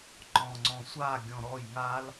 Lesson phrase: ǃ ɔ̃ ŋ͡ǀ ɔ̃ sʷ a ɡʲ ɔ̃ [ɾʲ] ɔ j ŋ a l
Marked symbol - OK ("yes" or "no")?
no